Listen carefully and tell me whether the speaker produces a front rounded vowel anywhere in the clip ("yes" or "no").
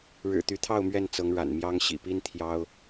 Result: yes